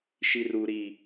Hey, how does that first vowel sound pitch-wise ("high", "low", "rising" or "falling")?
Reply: low